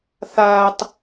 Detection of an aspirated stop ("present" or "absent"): absent